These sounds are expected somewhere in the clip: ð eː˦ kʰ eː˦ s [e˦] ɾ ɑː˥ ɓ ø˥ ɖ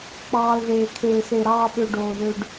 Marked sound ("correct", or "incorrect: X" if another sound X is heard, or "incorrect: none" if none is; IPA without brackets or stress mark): correct